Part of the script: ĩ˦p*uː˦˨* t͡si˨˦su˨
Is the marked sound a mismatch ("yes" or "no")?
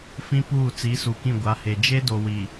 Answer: no